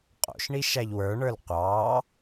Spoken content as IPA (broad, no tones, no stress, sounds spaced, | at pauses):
qʼ o̰ ʃ ɳ i ʃ æ ʎ w ə˞ ɳ ə˞ l qʷ ɑː